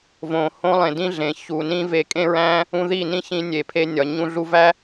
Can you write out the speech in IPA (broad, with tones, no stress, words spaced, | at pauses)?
võ˨ hõ˦lˠẽ˨dĩ˦ɮẽ˨ çu˨ nĩ˦ ve˧kʼẽ˦ɹæ̃˦ | ũ˧ði˦˨nĩ˦ çĩ˧nʲe˨ pʰe˧ nʲɒ˨ ɲũ˧ɮu˧væ˦